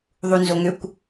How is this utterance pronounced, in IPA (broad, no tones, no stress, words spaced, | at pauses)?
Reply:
ðˤunzoŋʏkʷ